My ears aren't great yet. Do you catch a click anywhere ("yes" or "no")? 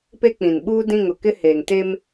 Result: no